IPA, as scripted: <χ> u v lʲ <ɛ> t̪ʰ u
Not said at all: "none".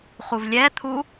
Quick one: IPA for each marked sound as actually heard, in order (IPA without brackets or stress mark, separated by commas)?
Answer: χ, ɛ